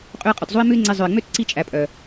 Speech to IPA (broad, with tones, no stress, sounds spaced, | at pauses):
qʼ ø˧ ə̯ qʼ ø˨ t zˤ o˦ ɪ̯ m ʉ˦ ɪ̯ ŋ͡ǀ e˧ zˤ œ˨ ɪ̯ ŋ͡m ø˦ t ǀ i˧ t͡ʃʼ æ˨ pʼ œ˨